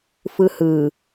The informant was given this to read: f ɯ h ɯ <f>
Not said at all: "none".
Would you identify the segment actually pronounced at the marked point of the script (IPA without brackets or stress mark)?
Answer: none